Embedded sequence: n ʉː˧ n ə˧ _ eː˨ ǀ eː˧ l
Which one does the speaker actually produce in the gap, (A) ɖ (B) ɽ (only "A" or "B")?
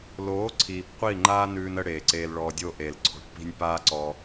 B